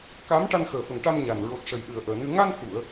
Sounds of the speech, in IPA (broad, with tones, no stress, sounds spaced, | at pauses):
k a˧˥ m ʈ a˧ n x əː˨˩ f ə˨˩ ŋ ʈ a˧ m ɲ a˨˩ n ɹ o˨˩ t̚ ʂ ə˨˩ j ɗ ɨ˨˩ ə̯ ʔ əː˨˩ n ɨ˧ ŋ a˧ n h u˨˩˨ ə̯